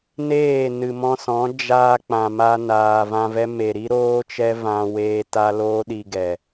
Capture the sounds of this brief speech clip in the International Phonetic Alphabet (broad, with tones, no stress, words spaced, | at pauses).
neː˦˨nɨ˨mɔ̃˧sɔ̃˨˦ d͡ʒaː˧k͡pã˨ma˧ naː˨vã˧vɛ˦ me˨ɾi˦ɾoː˦t͡ʃɛ˦ vã˦weː˦ ta˦loː˦ɗi˧ ɡɛ˨